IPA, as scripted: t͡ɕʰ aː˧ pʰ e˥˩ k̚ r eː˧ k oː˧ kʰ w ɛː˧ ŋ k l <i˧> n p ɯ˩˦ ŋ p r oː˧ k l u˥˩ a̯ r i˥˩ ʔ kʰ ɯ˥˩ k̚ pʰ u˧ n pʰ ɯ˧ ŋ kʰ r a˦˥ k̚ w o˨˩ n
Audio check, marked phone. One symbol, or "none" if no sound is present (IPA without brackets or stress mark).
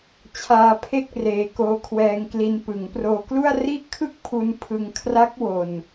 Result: i˧